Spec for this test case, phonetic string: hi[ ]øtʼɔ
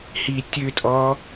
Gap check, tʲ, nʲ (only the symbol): tʲ